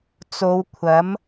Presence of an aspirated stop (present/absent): present